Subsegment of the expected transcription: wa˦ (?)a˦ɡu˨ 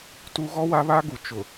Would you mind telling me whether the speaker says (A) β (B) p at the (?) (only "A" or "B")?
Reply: A